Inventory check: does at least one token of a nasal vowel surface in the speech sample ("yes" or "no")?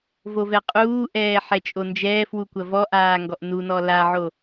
no